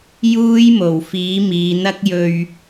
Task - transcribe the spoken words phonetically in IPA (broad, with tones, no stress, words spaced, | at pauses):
juː˥jmo˨˩wfiː˨˥ miː˨˧n̪ɐ˥k̚ jɵ˧ɥ